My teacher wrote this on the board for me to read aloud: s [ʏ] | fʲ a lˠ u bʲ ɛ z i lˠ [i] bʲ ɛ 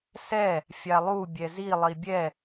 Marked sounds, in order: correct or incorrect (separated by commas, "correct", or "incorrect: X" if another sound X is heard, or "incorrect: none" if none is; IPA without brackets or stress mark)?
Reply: incorrect: ɛ, correct